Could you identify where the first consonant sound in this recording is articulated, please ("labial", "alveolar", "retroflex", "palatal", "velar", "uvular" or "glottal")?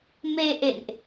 labial